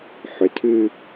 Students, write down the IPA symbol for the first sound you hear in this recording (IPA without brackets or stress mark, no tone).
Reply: ħ